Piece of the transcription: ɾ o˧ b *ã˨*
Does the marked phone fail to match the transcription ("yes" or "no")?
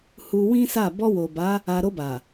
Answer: yes